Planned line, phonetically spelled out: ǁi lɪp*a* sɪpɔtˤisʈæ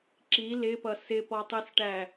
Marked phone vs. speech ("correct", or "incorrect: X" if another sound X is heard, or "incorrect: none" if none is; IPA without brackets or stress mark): incorrect: ʌ